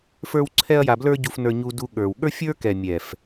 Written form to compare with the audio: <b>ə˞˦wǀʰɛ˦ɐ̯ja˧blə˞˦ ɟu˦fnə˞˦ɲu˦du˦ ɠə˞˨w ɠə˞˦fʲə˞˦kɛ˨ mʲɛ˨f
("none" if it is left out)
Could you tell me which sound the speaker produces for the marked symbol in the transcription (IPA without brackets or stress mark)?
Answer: f